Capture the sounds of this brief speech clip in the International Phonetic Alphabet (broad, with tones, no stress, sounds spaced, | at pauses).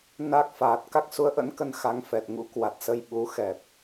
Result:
n a˦˥ k̚ f aː˨˩ t̚ k a˦˥ k̚ s u˨˦ ə̯ ʔ ə̰˧˥ n k ə˧ n x a˨˦ ŋ f ɛ˨˩ t̚ ŋ ṵ˧˥ k w a˨˩ t̚ s ə˧ j ɓ u˨˦ x ɛ˨˩ p̚